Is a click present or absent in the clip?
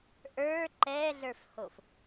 present